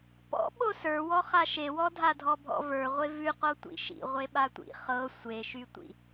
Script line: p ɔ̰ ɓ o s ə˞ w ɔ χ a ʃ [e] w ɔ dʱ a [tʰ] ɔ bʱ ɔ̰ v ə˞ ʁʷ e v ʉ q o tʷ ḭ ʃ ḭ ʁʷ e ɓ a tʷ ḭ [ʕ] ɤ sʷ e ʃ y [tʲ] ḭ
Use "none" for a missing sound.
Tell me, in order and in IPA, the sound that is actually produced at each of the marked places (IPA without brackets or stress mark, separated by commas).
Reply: e, dʱ, χ, tʷ